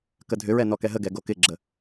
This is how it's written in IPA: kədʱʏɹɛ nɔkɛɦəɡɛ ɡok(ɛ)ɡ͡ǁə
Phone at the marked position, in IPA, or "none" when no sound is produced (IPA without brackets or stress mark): ɪ